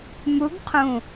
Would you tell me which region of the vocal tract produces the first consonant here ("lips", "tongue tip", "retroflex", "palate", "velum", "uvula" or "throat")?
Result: lips